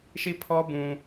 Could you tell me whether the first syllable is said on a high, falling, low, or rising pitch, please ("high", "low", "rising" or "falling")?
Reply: falling